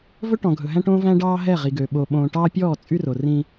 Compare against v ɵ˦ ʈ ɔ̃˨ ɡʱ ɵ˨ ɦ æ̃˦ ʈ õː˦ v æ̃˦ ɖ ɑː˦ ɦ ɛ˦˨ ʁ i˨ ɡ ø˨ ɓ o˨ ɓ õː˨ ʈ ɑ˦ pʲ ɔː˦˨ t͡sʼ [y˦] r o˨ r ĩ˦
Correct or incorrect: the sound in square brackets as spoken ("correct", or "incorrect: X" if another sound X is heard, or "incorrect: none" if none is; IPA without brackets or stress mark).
correct